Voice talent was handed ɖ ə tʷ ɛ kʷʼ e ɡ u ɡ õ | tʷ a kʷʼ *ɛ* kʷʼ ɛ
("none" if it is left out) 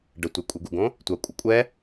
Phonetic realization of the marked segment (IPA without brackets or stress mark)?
ə